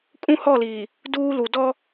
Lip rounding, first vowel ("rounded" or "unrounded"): rounded